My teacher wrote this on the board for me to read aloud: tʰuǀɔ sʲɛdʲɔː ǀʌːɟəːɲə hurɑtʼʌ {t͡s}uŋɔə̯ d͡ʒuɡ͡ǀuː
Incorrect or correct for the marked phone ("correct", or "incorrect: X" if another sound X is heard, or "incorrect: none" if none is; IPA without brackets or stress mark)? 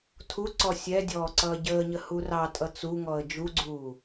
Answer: correct